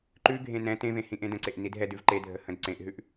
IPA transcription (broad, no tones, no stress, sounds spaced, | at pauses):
ǃ ʉ ɡʱ ẽ n ɛ̃ t ẽ v ẽ h ĩ ʔ ẽ d ə̃ ǀ e ʔ n i d ɦ ɛ d ʉ v ǃ e dʱ ə h ə̃ d ǀ ẽ ʔ ɦ ʉ ʔ